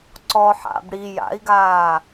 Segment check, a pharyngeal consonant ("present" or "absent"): present